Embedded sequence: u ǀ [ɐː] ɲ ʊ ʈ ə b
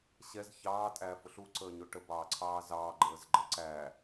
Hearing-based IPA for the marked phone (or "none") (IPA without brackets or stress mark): əː